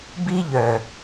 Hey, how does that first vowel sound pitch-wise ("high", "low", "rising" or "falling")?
high